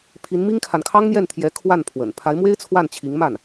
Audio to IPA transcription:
pʰ i˧˥ n m i˥ ŋ kʰ a˨ n kʰ ɑ˥ ŋ n̪ j ɛ˥˩ n t̪ʰ j ɛ˧˥ kʰ w a˥˩ n pʰ w ə̰˨˩ n pʰ a˧˥ ɪ̯ m w e˥ ɪ̯ t͡sʰ w a˥˩ n t͡ɕʰ i˧˥ ŋ m a˥˩ n

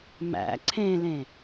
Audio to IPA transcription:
m æ̰ ǀʰ ẽ l ẽ

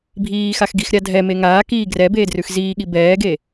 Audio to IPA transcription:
bʱ iː x a x ɡ i x ɾʲ a dʱ ɛ m e ŋ aː k iː ɡ r ɛ b eː d r ʉ x z iː ɠ i b ɛː ɡ e

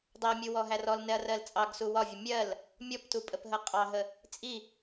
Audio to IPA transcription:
dˤ ɜ mʲ u w ɔ ɦ æ r ɔ l n ɛ ɐ̯ r ɜ l t͡sʼ ɑ ɡ s u w ɒ vʲ ə mʲ ɜ l | mʲ ɔ p t u pʼ ə p ɦ ə qʼ ɑ ɦ ə | t͡sʼ i

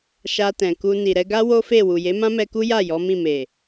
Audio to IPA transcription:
ʃ a˧ t ɛ̃˨ k u˧ n i˨ ɾ ɛ˧ ɡ a˦ w o˦ f e˦˨ w u˨ j e˨˦ m ã˦ m ɛ˧ k u˦ j a˦˨ j ɔ˨˦ m ĩ˦˨ m e˨

